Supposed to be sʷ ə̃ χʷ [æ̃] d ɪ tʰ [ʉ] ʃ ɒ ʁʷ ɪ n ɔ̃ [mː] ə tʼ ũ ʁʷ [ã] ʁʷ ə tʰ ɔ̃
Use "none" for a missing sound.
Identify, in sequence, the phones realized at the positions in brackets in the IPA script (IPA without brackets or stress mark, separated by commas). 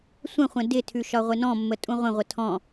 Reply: ə̃, ʉ, mː, ə̃